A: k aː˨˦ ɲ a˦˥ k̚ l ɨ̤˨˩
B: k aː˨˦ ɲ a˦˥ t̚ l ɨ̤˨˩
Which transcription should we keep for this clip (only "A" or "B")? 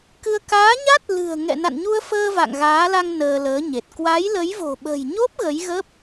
B